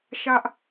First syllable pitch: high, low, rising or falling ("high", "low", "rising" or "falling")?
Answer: high